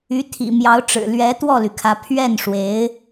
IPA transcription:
y˧˥ t̪ʰ ḭ˨˩ m j ɑ˧˥ ʊ̯ ʈ͡ʂ ɻ̩˨˩ l ɥ ɛ˧˥ t̪ w ɔ˥˩ l y˩ kʰ ä˧˥ pʰ ɥ ɛ˥˩ n ʂ w e˧˥ ɪ̯

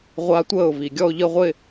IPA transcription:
ʁʷ a˦˥ tʷ əː˥˩ ʊ̯ v i˨˩ ɡʲ ɔ˥˧ ʊ̯ ʎ ə˥˧ ʁʷ ɪ˥˧

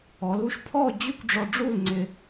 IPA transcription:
ɔ˩˧ l u˧ ʃ pʰ ɔ˥˧ d͡ʑ y˥˧ kʷ ɖ͡ʐ ɔ˧ ɖ͡ʐ u˥˧ l ŋ͡ǀ ɪ˧

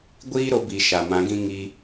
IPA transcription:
ɡʷ iː˦ ɾ o˧ b i˨ ʃ a˨ m ã˨˦ ɡ ĩ˦ ŋ i˧

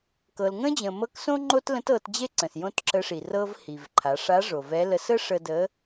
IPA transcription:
k ɤ˩ l ŋ ə̃˥ d͡ʑ ə̃˩ m ɤ˧˥ k s õ˥ ŋ͡ǃ o˥ t l ə̃˧˥ t ɤ˩˧ t d͡ʑ e˥ ǀ ə̃˩ s j õ˥ t ǁ ə˧˥ ʂ i˩ r ɤ˥ v h i˩ v ǃʰ a˩˧ ʂ a˧˥ ʐ o˩ v ɛ˧˥ l ə˧˥ s ə˥ ʂ ə˧ d ə˧˥

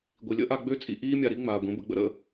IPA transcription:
ɡʷ i˨ lʲ ə̰˦ ʔ a˧ ɡ͡b ø˦ t͡sʼ ḭ˧ ʔ iː˦ mʲ a˧ ɾ i˦ ŋ͡m aː˨ ɡʷ ẽ˨˦ b ə̰˧ ɡ͡b ə̰˦ ɾ ə̰˧

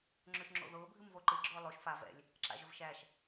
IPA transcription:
ŋ͡ǁ ɵ ʃ ŋ͡ǁ o̰ ð ʊː bʱ ɨ m v o ǃ ɨ ɡ͡ǁ ʊː lˠ o ʃ f a v ɛ̰ lʲ | ǁ a̰ ʒ ɵ v ʃ æ ʃ

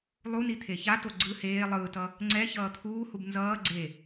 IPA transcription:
lˠ u n i t̪ʰ e ç a t o ɡ͡ǀ ɯ h eː lˠ ɯː t ʌ | ŋ͡ǀ ɛ ç ʌː t̪ʰ uː h u b n z ʌː ɡ͡ǀ e

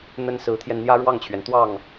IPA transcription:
n̪ ə˥ n s ɹ̩˧˥ t̪ʰ j ɛ˧ n n̪ j ä˥ ɻ w ɑ˥˩ ŋ t͡ɕʰ ɥ ɛ˩ n t̪ w ɑ˥˩ ŋ

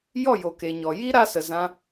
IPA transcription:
j ɔ˦˨ j o˨ k e˨ ɲ ɔ˨ j i˦ ɾ a˧ s ə˨ z ã˦

